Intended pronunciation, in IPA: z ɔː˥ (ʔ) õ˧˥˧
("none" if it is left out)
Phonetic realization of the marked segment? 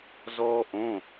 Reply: ʔ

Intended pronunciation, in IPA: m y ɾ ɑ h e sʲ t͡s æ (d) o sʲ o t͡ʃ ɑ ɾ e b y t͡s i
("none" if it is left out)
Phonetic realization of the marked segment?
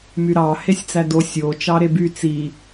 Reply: d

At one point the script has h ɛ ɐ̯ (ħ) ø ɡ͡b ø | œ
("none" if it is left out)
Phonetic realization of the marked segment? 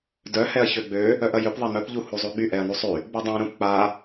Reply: ç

